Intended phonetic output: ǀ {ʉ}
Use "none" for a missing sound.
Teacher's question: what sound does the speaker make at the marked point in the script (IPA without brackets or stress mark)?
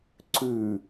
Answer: ʉ